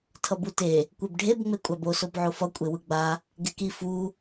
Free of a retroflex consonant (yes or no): no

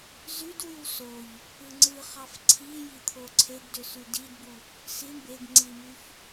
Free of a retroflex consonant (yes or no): no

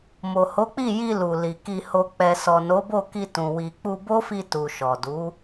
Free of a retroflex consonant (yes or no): yes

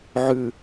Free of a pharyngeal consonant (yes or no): no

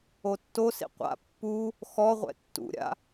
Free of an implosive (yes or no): yes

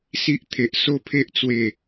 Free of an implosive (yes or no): yes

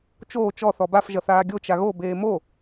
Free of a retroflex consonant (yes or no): yes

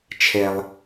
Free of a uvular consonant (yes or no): yes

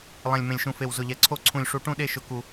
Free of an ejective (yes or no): yes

